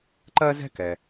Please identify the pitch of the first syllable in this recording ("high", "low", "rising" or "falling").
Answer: high